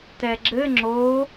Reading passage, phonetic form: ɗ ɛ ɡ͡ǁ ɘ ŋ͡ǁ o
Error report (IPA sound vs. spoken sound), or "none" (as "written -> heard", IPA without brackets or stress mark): ɗ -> t